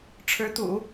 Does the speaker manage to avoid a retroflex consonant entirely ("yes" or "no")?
no